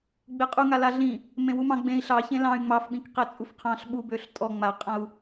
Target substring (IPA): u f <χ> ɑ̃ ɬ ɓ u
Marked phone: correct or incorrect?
incorrect